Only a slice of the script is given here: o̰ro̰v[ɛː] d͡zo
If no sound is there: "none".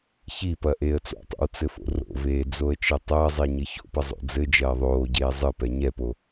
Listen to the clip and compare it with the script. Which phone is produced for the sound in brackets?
eː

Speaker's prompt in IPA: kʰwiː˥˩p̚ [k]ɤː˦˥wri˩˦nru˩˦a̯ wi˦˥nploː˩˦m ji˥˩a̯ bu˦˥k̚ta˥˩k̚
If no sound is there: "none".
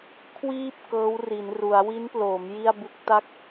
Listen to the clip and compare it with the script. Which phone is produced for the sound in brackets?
k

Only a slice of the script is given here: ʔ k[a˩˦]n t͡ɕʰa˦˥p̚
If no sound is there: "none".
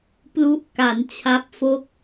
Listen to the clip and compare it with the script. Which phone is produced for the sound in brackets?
a˩˦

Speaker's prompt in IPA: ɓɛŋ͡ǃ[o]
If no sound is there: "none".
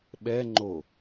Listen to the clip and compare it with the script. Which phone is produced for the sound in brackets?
o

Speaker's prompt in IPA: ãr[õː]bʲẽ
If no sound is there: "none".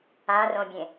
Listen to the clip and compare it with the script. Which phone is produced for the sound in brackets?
õ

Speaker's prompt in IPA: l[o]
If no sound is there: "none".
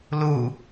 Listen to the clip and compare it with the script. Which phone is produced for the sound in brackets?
u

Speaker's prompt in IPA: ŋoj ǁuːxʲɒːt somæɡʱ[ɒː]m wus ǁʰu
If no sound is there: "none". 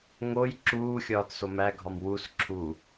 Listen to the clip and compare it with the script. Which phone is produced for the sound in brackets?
ɒ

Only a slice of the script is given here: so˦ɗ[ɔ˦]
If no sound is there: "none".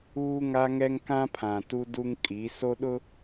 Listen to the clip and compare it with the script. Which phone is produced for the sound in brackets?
ʊ˦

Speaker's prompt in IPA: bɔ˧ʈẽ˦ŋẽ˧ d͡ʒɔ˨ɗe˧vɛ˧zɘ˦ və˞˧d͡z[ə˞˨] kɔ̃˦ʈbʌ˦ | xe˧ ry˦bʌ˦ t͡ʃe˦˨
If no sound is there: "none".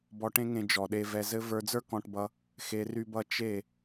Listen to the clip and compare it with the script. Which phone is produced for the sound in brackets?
ə˞˦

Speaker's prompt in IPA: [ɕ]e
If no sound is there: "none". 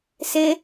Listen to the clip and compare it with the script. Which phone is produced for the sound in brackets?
s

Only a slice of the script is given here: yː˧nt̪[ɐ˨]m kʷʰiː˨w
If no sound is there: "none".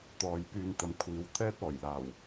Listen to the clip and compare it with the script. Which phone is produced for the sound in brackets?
ɐ˨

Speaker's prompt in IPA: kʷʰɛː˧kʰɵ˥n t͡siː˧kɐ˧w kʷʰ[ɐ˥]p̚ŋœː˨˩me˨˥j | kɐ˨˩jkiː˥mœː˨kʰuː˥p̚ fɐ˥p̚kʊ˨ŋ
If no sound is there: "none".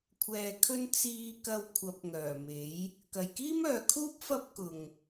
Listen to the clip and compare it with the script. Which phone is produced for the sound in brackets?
ɐ˨˥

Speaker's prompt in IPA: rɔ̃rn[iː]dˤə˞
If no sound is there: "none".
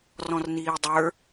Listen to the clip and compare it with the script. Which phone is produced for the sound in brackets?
iː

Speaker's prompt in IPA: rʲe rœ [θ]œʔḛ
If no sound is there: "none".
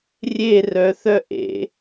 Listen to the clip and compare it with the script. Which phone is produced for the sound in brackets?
θ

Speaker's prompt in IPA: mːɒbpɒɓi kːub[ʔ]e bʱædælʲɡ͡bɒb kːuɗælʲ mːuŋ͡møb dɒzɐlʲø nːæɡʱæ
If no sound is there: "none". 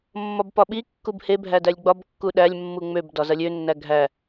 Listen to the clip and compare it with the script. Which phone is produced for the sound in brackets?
h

